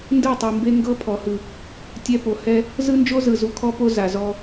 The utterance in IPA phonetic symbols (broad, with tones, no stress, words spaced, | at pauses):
ndɯ˦˨tˤi˨mbe˦ ŋɡɤ˦pʰɔ˨hɯ˨ | tʲɛ˦po˨ hɛ˦ | zɯ˦nd͡ʒo˦zɯ˨ zu˨kʰɔ˦po˦ za˨zɔ˦